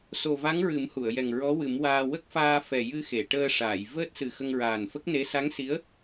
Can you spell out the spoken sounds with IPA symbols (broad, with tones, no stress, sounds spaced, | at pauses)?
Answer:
s o˨˩ v a˧˥ ŋ ɹ ɨ˨˩˦ m h u˨˩˨ ə̯ j ɛ˨˩ ŋ ɹ ɔ˧˥ w ɨ˨˩˦ m w aː˧ w ə˦˥ k̚ f aː˧ f ɛ˨˩ j ɨ˧ x e˨˩˨ ʈ əː˧ ʂ aː˨˩˨ j v əː˦˥ t̚ s ɨ˨˩ x ə˧ ŋ ɹ aː˨˩ n f ə˦˥ k̚ n e˧˥ s a˧˥ ŋ s i˧˥ ə̯